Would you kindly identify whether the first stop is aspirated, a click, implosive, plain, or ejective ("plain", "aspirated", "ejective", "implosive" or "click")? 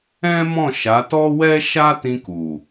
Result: plain